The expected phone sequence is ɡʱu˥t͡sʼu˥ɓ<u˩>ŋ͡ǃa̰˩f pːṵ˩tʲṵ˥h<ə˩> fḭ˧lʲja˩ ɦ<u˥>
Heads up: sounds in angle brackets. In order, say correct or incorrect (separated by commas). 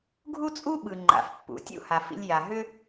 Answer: incorrect, incorrect, incorrect